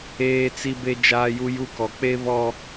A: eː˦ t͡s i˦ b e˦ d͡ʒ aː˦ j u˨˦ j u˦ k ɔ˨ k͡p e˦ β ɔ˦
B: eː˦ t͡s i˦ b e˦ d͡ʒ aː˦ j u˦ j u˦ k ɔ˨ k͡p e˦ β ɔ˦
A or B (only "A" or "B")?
B